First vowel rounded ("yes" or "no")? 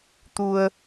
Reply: yes